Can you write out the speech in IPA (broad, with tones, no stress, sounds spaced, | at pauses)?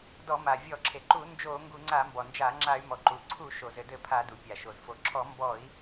d ɔ˧˩˧ m a˩ vʲ ɔ˧˩˧ ǁʰ e˩ ǃ u˧˩˧ n d͡ʒ o˧˩˧ ŋ ɡ u˧˩˧ ŋ͡ǀ a˧˩˧ m b ɔ˩ n d͡ʒ a˧˩˧ ŋ͡ǁ a˧˩˧ y̯ m ɔ˩ ǃ u˩ ǀʰ u˧˩˧ ʃ o˩ z ɘ˩ d ɘ˧˩˧ pʰ a˧˩˧ d u˩ pʲ a˩ ʃ o˩ z f o˩ ǁʰ ɔ˧˩˧ m b ɔ˧˩˧ i̯